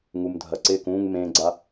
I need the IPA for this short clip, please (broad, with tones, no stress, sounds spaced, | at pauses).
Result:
ŋ u˩ m dʱ ɐ˩ ǀ ɪː˧˩ k ũː˧˩ ŋ m ẽː˩ ɡ͡ǀ a˩